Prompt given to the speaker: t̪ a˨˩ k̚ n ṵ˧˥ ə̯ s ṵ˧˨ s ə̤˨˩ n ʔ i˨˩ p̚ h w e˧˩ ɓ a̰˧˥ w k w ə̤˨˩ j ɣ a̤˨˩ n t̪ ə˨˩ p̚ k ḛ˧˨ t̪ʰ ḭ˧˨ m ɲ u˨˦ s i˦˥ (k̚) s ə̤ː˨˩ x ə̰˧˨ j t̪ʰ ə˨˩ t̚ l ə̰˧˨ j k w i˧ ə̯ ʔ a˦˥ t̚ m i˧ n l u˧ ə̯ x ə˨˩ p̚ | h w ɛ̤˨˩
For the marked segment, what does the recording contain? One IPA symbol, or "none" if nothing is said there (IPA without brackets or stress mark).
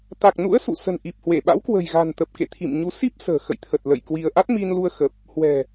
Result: p̚